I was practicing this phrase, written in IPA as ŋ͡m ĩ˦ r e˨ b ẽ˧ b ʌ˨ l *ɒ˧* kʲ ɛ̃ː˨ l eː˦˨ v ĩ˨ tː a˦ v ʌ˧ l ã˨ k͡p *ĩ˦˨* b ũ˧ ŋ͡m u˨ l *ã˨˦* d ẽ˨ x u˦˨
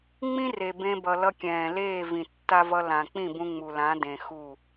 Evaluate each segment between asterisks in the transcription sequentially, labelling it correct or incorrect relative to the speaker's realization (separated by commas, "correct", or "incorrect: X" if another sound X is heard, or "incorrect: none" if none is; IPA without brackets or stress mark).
incorrect: ʌ˧, correct, correct